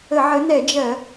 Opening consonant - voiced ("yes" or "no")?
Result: yes